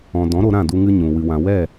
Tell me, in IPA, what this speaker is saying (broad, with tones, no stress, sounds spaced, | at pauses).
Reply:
ɔ̃˨ d ɔ̃˨˦ ɾ o˧ ɾ ã˦˨ d u˧ ŋ ɨ˧ ɲ ũ˨ w ɨ˨ w ã˨ w ɛ˦˨